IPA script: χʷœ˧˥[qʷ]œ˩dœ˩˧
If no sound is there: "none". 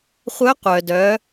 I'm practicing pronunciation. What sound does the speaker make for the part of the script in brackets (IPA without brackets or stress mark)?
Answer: qʷ